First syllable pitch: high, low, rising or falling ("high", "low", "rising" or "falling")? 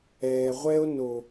low